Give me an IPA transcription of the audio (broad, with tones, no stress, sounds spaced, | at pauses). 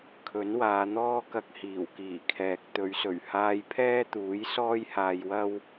kʰ ɵ˨˥ n w aː˨˧ n̪ ɔː˥ k ɐ˧ k̚ h iː˨˩ w k iː˨˩ kʰ ɛː˨ k̚ t̪ ɵ˨˧ ɥ s ɵ˨˩ ɥ h aː˧ j pʰ ɛː˥ t̪ uː˨˥ j s ɔː˥ j h aː˧ j w ɐ˥ w